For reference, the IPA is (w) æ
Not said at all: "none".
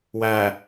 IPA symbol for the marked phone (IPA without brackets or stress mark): w